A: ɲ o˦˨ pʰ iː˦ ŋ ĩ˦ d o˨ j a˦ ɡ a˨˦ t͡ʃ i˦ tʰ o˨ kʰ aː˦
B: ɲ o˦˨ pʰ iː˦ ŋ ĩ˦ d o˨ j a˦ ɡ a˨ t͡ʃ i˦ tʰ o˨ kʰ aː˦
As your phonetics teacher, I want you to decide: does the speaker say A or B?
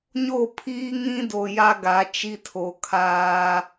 A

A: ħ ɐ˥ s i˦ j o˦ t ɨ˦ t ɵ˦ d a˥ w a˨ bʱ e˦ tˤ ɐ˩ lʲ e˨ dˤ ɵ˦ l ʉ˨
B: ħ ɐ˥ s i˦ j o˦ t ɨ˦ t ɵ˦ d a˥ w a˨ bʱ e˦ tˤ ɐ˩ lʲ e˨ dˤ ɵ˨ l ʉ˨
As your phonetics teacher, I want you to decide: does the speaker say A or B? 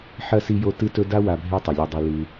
B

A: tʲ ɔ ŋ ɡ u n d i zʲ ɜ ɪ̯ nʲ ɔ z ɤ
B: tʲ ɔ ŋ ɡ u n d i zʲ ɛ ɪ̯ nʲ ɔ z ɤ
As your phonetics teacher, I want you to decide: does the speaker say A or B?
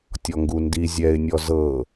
B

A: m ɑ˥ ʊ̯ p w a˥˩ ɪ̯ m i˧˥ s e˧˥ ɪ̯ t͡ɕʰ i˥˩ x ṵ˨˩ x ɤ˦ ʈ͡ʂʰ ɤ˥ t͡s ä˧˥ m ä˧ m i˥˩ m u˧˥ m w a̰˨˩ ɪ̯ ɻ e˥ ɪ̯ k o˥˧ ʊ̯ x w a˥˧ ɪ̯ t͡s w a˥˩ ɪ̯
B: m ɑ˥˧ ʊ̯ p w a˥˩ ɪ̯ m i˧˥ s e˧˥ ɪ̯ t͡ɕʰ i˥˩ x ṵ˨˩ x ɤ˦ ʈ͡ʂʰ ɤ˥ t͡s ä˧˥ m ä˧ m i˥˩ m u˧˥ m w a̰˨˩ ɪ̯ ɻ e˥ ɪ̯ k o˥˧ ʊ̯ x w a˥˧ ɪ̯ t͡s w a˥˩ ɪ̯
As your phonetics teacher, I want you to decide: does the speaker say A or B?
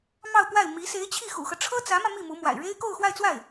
B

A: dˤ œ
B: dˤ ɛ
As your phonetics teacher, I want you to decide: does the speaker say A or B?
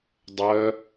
A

